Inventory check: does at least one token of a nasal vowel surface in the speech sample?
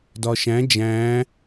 yes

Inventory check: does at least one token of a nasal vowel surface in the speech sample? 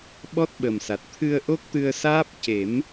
no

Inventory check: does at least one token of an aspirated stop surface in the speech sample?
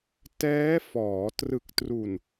no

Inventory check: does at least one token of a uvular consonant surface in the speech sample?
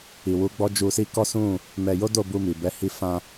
no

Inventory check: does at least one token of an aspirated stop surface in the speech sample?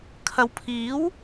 yes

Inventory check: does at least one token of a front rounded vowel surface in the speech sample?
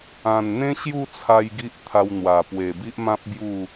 no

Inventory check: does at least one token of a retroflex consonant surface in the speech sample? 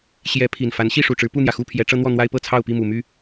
yes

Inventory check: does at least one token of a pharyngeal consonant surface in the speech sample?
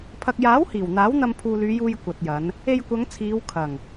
no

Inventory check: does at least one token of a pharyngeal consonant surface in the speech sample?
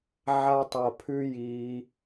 yes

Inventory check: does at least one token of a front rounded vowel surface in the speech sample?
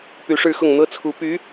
yes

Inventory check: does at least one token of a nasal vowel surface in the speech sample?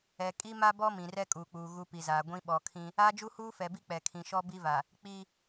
yes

